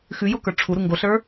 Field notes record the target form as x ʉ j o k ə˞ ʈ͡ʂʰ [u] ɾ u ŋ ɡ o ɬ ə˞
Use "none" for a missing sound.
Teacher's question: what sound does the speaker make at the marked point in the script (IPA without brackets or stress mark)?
u